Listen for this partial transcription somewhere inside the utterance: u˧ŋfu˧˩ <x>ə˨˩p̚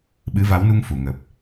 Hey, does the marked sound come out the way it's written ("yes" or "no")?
no